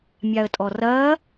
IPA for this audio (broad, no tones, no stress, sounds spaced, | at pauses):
mʲ a ə̯ tʼ ɔ r ɐː